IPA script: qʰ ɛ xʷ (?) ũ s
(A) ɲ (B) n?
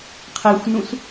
B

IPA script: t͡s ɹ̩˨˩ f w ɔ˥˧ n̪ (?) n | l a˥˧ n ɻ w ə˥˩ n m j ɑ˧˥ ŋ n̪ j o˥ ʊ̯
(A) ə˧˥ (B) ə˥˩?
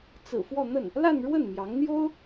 B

